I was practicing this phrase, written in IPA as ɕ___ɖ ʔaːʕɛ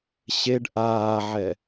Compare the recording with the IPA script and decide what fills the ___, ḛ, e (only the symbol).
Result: e